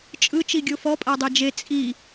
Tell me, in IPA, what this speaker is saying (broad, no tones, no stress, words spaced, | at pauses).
t͡ʃʼɯ t͡ʃiɡʲofɔ pʼadˤed͡ʒe t͡sʼi